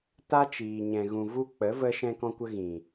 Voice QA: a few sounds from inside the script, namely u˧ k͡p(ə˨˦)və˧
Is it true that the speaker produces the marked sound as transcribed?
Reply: yes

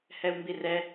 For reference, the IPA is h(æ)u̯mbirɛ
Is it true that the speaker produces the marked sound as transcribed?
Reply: no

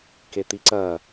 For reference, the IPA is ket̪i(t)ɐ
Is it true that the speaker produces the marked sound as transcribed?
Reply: no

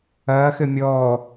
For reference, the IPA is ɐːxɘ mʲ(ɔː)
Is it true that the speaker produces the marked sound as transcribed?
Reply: yes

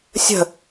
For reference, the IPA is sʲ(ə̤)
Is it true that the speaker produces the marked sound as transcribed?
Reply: yes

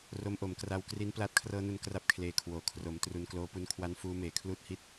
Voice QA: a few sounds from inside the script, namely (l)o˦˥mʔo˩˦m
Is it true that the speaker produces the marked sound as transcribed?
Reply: no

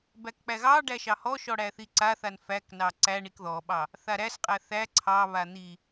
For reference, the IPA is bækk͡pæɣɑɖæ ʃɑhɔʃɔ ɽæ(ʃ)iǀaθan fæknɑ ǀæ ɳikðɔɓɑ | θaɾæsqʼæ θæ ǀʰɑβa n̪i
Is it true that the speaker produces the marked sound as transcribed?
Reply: no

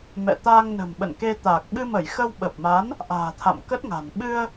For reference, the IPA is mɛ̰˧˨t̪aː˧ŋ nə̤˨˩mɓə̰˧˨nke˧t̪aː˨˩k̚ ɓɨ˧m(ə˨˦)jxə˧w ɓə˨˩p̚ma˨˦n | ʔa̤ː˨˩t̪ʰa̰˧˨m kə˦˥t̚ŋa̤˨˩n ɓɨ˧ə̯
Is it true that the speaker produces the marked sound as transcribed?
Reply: no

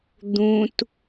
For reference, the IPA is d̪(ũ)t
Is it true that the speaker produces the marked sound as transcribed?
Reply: yes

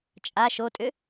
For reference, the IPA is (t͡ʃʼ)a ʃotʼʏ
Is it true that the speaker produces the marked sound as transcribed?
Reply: yes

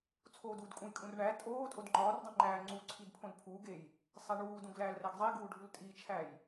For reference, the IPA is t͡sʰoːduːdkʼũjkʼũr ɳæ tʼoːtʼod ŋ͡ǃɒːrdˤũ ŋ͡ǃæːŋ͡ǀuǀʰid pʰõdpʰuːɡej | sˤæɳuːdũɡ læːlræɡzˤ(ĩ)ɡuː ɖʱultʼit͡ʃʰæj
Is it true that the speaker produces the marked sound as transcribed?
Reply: no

